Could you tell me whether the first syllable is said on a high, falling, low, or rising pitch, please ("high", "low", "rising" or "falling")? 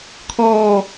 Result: low